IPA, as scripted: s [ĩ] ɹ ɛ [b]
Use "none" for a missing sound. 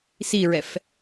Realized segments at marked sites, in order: i, f

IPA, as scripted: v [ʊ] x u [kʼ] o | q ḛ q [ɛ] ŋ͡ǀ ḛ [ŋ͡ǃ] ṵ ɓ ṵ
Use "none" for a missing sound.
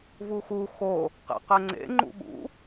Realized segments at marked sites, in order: u, x, ɛ, ŋ͡ǃ

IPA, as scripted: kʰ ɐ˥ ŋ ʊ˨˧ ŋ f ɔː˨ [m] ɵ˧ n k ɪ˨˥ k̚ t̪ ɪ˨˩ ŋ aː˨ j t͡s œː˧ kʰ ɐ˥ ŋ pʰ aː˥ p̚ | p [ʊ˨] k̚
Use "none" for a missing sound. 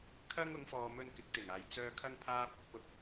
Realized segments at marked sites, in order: m, ʊ˨

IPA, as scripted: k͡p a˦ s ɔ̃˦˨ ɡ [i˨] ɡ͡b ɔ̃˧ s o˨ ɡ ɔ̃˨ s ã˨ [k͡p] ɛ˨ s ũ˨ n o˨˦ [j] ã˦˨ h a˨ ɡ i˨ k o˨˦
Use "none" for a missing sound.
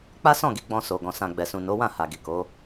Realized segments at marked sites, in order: i˨˦, ɡ͡b, w

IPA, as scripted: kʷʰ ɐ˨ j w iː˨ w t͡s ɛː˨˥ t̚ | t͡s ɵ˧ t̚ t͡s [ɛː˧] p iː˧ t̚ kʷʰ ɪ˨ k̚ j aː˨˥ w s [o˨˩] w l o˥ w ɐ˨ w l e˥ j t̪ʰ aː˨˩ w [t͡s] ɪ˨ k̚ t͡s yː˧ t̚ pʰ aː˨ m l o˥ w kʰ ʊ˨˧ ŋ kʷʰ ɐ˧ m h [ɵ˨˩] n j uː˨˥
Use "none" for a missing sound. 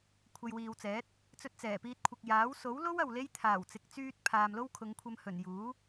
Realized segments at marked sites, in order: ɛː˨˩, o˨˥, t͡s, ɵ˨˩

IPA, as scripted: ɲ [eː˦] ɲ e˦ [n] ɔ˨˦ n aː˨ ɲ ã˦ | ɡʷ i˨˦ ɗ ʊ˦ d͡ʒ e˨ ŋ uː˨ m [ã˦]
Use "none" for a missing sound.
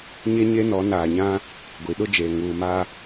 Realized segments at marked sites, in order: e˦, n, a˦

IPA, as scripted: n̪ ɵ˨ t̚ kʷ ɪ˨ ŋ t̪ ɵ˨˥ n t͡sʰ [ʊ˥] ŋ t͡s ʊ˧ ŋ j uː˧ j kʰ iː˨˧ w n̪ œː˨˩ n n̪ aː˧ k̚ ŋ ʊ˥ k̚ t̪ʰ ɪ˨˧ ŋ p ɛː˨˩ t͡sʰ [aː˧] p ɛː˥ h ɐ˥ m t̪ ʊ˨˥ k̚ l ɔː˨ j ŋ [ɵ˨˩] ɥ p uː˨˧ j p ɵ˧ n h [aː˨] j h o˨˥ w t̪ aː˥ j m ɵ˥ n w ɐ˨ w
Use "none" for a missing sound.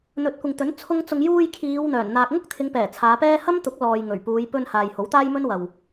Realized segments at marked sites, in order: ʊ˥, aː˨˧, ɵ˨˩, aː˨

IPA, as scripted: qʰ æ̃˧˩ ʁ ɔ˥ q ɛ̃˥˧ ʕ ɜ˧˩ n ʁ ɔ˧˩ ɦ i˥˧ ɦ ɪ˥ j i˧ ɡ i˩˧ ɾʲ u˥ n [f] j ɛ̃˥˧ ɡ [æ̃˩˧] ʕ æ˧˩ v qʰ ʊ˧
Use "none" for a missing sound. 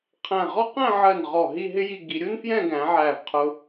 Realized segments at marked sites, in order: f, æ̃˩˧

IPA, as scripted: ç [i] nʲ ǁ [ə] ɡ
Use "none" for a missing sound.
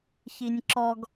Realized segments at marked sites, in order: i, ɔ

